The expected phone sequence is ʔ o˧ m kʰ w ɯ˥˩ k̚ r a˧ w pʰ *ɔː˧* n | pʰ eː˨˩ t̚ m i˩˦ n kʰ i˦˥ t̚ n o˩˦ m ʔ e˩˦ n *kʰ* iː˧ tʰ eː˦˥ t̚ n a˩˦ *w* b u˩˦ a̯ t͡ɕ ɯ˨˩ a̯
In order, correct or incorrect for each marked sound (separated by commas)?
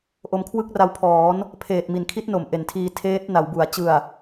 incorrect, incorrect, correct